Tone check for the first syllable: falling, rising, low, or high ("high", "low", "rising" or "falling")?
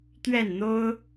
falling